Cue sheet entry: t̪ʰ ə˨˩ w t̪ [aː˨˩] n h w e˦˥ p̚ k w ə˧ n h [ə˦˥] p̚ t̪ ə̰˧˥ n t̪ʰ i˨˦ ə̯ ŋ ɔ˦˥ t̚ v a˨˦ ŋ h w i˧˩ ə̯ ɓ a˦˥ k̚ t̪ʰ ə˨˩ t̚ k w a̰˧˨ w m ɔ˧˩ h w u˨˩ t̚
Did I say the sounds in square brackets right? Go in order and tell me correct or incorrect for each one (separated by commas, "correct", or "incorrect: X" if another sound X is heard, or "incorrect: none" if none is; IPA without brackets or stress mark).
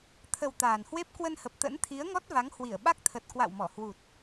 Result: correct, incorrect: ə˨˩